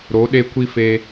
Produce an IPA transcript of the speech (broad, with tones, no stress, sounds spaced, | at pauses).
ɾ o˨˦ ɗ e˧ kʷ i˦ f e˧